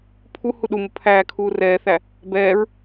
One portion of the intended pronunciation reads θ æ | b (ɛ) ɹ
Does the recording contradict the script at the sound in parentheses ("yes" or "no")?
yes